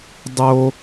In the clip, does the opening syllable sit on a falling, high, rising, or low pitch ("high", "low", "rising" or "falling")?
high